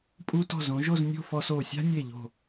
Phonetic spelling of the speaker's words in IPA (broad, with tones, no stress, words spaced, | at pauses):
pʼu˧tɔ̤˧˩zõ˩˧ ʒo˥˧znʲo̤˥˧fɔ˧so˧˩ sʲa̤˥nʲe˧˩ʎo̤˧˩